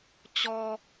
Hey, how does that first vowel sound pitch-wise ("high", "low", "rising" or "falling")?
low